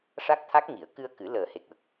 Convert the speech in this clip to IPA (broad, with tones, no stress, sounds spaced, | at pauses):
ʂ a˦˥ k̚ t̪ʰ a˦˥ k̚ ŋ i˨˩˦ ə̯ k ɨ˧ ə̯ k ɨ˨˩˦ l əː˨˩ h e˨˩ k̚ w ə˨˩ k̚